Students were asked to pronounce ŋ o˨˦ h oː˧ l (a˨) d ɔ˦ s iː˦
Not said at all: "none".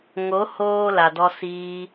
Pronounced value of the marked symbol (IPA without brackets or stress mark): a˨